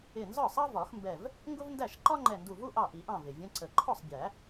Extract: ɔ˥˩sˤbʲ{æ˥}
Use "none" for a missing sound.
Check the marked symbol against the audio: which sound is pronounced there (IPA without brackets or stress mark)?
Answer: æ˨˩˦